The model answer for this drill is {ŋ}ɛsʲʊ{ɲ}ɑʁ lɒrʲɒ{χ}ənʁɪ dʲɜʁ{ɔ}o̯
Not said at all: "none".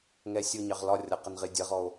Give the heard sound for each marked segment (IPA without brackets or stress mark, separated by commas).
ŋ, ɲ, q, ɔ